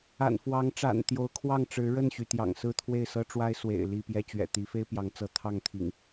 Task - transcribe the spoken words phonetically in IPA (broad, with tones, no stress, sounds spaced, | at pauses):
a̰˨˩ n f w ɑ˨˦ ŋ ʈ͡ʂ a̰˨˩ n t̪ j o˨˦ ʊ̯ kʰ w ɑ˥˨ ŋ ʈ͡ʂ ɻ̩˨˦ ɻ ə˥˨ n ɕ y˩ t̪ j ɑ̰˨˩ ŋ s ɹ̩˥˨ t̪ʰ w e˥˨ ɪ̯ s ɤ˦ ʈ͡ʂ w a˦ ɪ̯ s w ḛ˨˩ ɪ̯ l i˥˨ p j ɛ˦ t͡ɕ ɥ ɛ̰˨˩ t̪ i˨˦ f e˦ ɪ̯ p j ɑ˨˦ ŋ t͡s ɤ˨˦ t̪ʰ ɑ˥˨ ŋ t̪ʰ ḭ˨˩ ŋ